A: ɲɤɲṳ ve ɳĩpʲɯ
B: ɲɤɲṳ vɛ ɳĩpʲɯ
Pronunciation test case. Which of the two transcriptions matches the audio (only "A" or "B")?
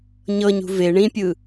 A